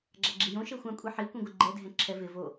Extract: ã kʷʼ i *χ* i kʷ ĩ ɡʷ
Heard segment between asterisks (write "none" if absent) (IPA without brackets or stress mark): ħ